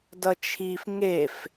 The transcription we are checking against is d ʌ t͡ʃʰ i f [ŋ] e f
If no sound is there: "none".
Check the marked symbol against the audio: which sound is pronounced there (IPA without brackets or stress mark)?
ŋ